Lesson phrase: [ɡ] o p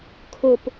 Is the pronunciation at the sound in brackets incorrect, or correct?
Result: incorrect